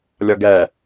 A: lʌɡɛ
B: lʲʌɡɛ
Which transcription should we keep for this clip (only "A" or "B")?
B